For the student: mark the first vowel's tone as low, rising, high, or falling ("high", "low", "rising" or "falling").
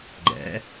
rising